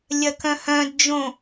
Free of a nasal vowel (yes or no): no